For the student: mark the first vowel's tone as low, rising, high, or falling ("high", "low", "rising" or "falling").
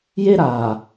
high